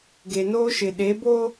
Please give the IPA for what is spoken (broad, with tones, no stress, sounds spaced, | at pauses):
ɡ e˨ n oː˦ ʃ ɪ˨ ɗ e˨˦ b o˦